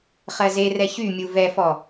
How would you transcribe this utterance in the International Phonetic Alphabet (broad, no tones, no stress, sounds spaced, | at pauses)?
χ ɜ z e r ɛ ç y mʲ u v ɛ f ɔ